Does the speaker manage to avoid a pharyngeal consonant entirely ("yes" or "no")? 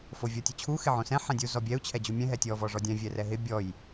no